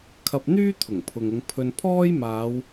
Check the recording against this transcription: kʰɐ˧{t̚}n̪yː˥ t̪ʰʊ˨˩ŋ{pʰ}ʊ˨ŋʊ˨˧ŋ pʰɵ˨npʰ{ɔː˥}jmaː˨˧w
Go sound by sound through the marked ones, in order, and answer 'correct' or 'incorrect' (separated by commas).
incorrect, correct, correct